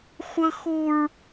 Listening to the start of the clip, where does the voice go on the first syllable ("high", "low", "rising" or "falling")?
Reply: high